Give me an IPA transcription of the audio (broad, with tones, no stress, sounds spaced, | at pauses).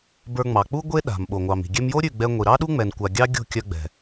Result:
b ə˞˧ ŋ͡m ɑ˨ k͡p u˦ ɡʷ e˦ ɗ a̤˨ m ɓ o˨ ŋʷ ɑ˨ m i̤˨ ɡʲ ɛ˧ m j o˦ ɾʲ ʉ˦˨ ɡ͡b ɛ˧ ŋʷ i˨ ɾ ɑ˦ ɗ u˦ ŋ͡m ɛ˨ n kʷ a˨ ɡʲ ɑ˦ ɡʲ o̤˦˨ kʲ œ˧ ɡ͡b ɛ̤˨